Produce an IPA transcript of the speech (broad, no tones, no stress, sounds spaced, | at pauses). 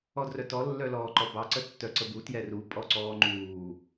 ɔ d r œ t ɔ lː œ l ɔː ǃ ɔ b ɑ ǀ ə tː œ ǀ ə b u t j ɛ r u pʼ ɔ ǀ ɔː ŋ͡ǃ uː